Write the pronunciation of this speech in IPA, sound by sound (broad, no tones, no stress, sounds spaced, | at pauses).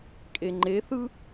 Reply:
kʼ e ŋ͡ǃ e θ ɯ